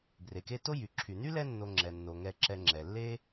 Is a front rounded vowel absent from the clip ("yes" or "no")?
no